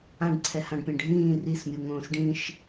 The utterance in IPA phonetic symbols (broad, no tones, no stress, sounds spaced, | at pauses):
ã ɖ ǀʰ ɛ h ã ɖ pʲ ɛ̃ ɖʱ ĩː r i s mʲ u ŋ õː s ɖ ĩ ʃ